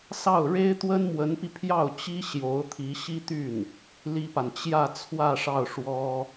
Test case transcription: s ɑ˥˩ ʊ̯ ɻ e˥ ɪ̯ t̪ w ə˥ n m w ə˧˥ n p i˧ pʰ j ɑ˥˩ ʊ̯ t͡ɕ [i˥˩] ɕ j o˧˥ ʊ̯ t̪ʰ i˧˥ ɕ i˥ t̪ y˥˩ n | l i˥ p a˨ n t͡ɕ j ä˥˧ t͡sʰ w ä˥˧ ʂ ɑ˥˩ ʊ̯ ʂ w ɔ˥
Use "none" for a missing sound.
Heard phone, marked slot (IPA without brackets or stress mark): i˥